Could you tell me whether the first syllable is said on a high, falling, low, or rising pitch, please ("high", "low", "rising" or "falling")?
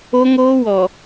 high